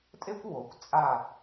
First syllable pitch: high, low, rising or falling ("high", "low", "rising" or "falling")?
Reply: high